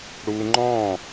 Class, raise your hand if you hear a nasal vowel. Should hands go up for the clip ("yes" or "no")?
yes